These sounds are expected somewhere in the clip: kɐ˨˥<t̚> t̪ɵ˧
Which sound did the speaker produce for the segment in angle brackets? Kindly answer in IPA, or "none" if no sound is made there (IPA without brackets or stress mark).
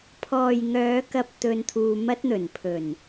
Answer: p̚